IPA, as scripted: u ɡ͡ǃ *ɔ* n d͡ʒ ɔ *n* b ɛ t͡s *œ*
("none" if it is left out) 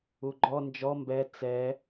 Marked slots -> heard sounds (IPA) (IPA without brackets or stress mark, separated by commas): ɔ, m, ɛ